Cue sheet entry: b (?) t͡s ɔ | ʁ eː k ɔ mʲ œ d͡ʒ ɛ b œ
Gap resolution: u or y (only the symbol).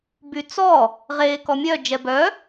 y